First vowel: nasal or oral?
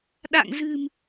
oral